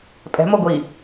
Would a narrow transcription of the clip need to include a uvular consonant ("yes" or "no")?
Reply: no